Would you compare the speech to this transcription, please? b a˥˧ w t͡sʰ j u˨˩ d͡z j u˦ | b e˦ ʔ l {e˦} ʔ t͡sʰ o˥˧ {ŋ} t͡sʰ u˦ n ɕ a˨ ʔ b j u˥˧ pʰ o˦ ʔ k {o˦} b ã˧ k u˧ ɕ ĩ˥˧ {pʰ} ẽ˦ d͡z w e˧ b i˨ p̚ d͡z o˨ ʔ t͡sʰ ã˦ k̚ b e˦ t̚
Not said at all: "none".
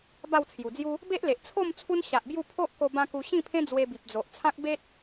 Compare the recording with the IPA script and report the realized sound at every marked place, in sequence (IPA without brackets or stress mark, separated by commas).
e˨, m, o˧, pʰ